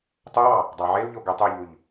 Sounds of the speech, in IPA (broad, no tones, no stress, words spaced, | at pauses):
tˤowɑ | dˤɑʕelʎo ɡøtˤuʎuʎ